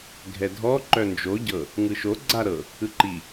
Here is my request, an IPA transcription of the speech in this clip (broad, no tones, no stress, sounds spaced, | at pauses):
ɡʱ ɛ dʱ ɔ ǃ œ n d͡ʒ o ɟ ɤ | ŋ ɯ ʃ o ɡ͡ǀ a ɾ ɤ | ɯ ǃ i